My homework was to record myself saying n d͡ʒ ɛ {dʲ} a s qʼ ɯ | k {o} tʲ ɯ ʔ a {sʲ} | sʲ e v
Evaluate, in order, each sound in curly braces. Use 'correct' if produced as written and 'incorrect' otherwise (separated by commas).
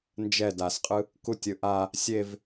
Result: incorrect, incorrect, incorrect